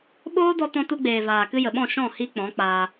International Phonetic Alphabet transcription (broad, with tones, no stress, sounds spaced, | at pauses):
ɓ oː˦ d ɔ˧ t ɔ̃˧ t u˧ ɡ͡b eː˨ v aː˨ k ɨ˧ j ə˨ ɓ ɔ̃˦˨ ʃ ɔ̃˦˨ h i˧ k͡p ɔ̃˨˦ k͡p aː˧